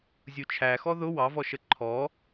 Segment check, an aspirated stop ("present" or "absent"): present